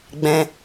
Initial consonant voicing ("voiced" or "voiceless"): voiced